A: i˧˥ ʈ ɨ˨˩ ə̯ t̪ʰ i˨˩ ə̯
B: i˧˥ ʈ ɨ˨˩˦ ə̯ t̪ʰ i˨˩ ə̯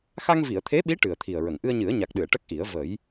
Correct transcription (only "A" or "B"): A